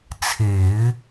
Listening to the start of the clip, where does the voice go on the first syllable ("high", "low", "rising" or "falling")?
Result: low